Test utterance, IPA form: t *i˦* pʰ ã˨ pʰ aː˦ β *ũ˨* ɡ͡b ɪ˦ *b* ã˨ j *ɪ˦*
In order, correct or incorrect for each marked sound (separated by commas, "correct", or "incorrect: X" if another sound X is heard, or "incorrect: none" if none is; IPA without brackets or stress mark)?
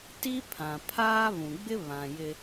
correct, correct, incorrect: β, correct